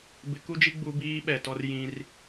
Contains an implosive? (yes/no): yes